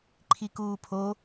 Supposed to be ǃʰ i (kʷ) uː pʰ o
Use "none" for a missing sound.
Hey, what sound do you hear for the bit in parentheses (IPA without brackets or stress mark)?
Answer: k